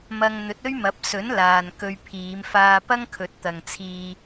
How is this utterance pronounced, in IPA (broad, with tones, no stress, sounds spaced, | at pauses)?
m ɐ˧ ŋ n̪ ɵ˨˥ t̚ ɵ˥ ɥ m ɐ˨˥ p̚ s ɵ˨˥ n l aː˨ n k ɵ˧ ɥ pʰ iː˨˧ m f aː˧ p ɐ˥ ŋ kʰ ɵ˨ t̚ t̪ ɐ˨ ŋ t͡sʰ iː˧